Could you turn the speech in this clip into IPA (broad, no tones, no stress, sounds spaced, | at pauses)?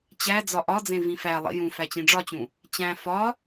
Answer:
t͡ɕ æ d͡z ɒ ʔ ɒ d͡z ẽ v ĩ f æ lˠ ḭ j ũ f æ t͡ɕ ĩ ɖ͡ʐ ɒ t͡ɕ ũ | t͡ɕ æ̃ f ɒ